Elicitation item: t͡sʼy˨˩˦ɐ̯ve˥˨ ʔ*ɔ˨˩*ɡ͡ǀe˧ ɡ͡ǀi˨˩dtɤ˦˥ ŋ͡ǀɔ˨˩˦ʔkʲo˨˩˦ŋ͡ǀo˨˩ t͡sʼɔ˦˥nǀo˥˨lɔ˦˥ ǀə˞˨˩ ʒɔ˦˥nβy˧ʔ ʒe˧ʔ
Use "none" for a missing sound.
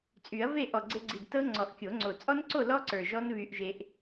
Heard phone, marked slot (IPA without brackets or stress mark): ɔ˨˩